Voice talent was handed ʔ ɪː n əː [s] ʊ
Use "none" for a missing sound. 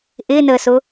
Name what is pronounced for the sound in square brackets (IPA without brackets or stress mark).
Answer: s